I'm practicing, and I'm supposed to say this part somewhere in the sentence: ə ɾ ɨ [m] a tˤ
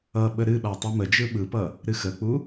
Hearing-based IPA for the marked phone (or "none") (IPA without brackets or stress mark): ɓ